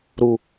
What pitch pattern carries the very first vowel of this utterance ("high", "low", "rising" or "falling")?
low